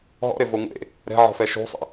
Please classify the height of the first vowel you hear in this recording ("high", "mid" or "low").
mid